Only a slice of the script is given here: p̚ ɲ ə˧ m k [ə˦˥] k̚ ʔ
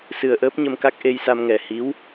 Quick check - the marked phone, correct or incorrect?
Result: incorrect: a˦˥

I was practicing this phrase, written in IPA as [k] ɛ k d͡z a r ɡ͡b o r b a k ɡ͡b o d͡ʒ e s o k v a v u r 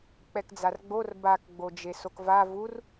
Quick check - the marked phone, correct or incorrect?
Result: incorrect: k͡p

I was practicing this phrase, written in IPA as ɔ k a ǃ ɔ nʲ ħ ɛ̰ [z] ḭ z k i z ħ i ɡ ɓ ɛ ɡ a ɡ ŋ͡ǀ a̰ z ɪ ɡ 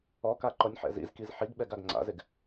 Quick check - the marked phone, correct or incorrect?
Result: correct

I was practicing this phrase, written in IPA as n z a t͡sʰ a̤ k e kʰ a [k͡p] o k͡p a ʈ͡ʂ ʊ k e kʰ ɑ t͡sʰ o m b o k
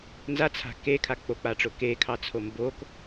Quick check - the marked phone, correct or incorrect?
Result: correct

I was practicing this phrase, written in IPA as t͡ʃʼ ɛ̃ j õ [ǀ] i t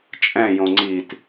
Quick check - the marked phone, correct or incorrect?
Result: incorrect: ŋ͡ǀ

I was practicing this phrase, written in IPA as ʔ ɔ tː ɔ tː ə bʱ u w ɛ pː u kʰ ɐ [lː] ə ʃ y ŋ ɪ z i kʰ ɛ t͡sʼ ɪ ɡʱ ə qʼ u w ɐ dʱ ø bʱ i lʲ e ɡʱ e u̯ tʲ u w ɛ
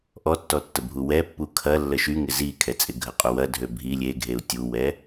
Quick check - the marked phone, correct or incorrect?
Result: correct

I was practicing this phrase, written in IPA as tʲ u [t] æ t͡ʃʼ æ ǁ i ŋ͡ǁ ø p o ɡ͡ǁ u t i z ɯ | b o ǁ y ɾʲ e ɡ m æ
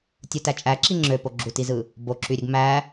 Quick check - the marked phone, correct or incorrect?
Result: correct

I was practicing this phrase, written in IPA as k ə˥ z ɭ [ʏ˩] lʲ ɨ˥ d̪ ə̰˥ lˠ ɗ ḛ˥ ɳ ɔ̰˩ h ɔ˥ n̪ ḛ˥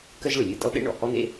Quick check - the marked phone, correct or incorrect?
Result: correct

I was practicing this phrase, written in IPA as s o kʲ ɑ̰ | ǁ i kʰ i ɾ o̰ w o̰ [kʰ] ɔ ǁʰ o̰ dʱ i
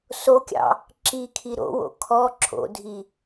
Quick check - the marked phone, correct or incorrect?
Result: correct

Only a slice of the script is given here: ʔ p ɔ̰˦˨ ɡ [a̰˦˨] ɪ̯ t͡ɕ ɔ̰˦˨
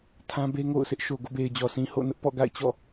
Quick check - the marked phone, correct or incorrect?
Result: correct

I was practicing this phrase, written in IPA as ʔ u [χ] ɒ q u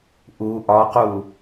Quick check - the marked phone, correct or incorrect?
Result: incorrect: ʔ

